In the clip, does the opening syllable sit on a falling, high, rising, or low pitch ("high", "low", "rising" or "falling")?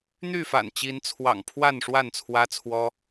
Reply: falling